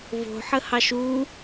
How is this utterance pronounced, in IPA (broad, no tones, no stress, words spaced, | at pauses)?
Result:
vo̤ħəhɑʃ u